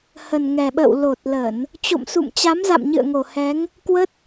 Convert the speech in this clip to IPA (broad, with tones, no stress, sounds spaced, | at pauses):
h ə˨˩ n ŋ ɛ˨˩ ɓ ə̰ː˧˨ w l o˨˩ t̚ l ə˧˩˨ n | t͡ɕ o̰˧˨ m s ṵ˧˨ m t͡ɕ a˨˦ m z a̰˧˨ m ɲ ɨ̰˧˨ ə̯ ŋ o˨˩ h ɛ˨˦ ŋ | k w ə˦˥ t̚